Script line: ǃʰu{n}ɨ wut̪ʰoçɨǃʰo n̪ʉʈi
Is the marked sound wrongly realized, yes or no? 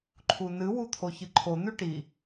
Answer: no